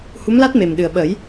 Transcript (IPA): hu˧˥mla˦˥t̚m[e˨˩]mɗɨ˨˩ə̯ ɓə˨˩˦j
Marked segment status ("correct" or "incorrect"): correct